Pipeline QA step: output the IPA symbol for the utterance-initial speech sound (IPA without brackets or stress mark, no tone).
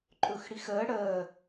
ǃʼ